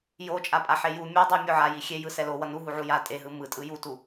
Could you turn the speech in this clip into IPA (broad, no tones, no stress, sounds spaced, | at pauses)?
j o t͡ʃʼ a pʼ a ħ e j u mʲ ɯ dˤ ɛ mʲ o ʕ a j i xʲ e j ɯ s ɛ l o w ʌ n u ɦ u ʕ u j a tʼ e ɦ ɯ m ɯ tʼ ɯ j u t u